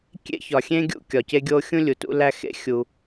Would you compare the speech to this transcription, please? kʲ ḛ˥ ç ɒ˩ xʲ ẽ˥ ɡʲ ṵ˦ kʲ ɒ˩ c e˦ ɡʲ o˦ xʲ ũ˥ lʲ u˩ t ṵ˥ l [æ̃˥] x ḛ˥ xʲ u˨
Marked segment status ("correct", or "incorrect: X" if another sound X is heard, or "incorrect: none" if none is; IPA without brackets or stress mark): incorrect: æ˥